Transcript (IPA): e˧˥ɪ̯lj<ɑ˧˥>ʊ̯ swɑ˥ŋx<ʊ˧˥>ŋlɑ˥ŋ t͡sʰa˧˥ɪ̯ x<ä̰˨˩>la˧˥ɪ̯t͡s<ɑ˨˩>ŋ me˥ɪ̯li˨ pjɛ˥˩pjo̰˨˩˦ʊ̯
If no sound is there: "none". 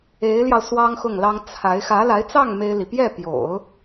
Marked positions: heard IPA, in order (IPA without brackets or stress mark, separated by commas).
ɑ˧, ʊ˥˩, ä˧˥, ɑ˥˩